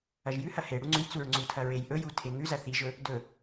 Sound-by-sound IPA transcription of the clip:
ɐʒjʉhɐ heɽu ŋ͡ǀʉjt͡suɹ ŋ͡ǀutʰɐ ɹejʔɵju tʰeŋʉzɐ θiʒɵ | dɵ

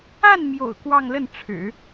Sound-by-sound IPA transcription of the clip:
a˥˩nmjo̰˨˩ʊ̯ kwɑ˥˧ŋlə˥˩nʈ͡ʂʰɻ̩˨˩˦

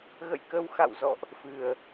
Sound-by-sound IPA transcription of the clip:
ɣə̰˧˨jkə˧w xa̰˧˨wzɔ̰˧˨ʔ | fɨ˨˩ə̯

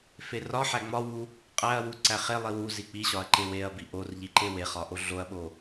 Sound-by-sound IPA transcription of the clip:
ferɒħæ ŋ͡mɒwu | qʼæɐ̯wu ǀæχelˠi wuzi k͡piɕɒɐ̯ ǃeweɐ̯bi ʔorʎi ǃeweχɒ ʔoɮoɐ̯ɓo

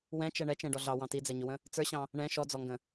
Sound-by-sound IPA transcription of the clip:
wɛ̃t͡ʃɛ ɳɛt͡ʃɛ̃ɖɔ ɮɑwɑ̃ tid͡zɛɲʊwə̃ | t͡sə˞ɕɑ̃ | ɳɛ̃ ʃɔd͡zɔŋɡə̃

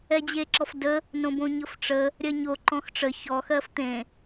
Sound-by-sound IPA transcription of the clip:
ɛd͡ʑeǁɔfdə | nõbõɲɤfʈ͡ʂə | ɾʲɜɲo ǃɔ̃xʈ͡ʂə çɔ xɜft̪ẽ

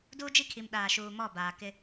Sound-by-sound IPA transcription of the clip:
duː˦d͡ʒi˦kʰi˨m ɗaː˨ʃuː˨ mɔ˦˨baː˨kɪ˦

